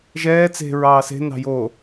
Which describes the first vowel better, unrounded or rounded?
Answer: unrounded